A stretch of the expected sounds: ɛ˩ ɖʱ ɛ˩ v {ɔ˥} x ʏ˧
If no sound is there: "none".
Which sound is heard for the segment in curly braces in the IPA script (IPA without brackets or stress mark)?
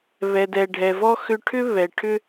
ɔ˥